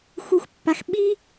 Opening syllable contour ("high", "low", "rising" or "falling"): rising